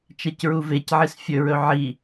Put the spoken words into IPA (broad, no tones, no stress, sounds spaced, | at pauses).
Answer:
t͡ʃ ɛ c ɹ u v e c ʕ i s fʲ ɵ ɹ ɵ ʕ i